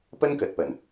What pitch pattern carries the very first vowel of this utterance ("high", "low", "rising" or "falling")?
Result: high